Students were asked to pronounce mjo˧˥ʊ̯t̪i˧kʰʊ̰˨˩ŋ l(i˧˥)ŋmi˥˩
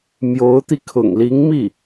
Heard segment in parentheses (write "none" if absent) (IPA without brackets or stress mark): i˧˥